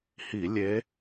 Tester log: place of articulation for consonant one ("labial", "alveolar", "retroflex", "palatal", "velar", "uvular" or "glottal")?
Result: glottal